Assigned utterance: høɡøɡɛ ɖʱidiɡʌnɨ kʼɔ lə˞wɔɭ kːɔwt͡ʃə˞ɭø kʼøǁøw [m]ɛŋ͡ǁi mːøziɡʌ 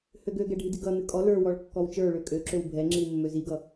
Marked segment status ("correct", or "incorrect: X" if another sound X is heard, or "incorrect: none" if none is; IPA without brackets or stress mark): incorrect: bʱ